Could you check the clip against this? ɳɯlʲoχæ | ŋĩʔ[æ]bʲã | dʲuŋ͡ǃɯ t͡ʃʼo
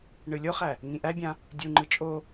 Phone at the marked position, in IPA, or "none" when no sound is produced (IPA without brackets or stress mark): æ